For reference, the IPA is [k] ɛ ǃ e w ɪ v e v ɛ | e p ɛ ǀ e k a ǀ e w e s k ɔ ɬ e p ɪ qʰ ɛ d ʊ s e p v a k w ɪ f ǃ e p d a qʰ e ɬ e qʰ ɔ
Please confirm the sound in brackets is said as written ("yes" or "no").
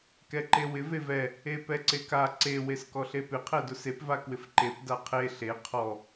yes